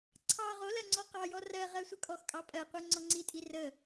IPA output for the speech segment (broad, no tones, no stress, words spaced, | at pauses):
ǀʰɑ ʁo lɜŋ͡ǀɔqɑjɔ rɜ ʁɜsʷəkʼɔxkʼɑ pʼɜqʷɛ ŋ͡ǀɔŋ͡ǀitʼi rə